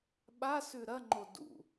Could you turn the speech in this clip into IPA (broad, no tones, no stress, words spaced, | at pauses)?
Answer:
ɓa sʉɾɐŋ͡ǃo dṵ